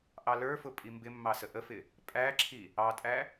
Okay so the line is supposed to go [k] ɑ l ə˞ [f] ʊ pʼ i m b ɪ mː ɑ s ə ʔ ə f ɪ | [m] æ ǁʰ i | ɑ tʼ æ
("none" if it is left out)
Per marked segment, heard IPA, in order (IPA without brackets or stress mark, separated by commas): ʔ, f, pʼ